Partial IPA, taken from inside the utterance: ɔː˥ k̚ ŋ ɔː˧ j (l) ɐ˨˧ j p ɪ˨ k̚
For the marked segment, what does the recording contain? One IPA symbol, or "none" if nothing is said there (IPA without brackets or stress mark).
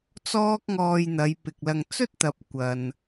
n̪